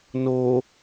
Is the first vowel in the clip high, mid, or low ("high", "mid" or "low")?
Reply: mid